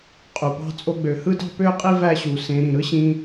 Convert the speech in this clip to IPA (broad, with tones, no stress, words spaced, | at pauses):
qʼu˨ pɑ̤˦t͡sʼo˦ɡ͡bø˧ hɯ˦ dɑ̤˦pø˦qʼi˦ væ˦ɕu˧ sẽ˧ ɾĩ˨ɾɯ˦ɕĩ˧